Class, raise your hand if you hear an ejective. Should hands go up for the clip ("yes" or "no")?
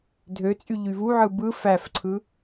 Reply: yes